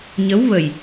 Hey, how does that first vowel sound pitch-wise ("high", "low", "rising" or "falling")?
rising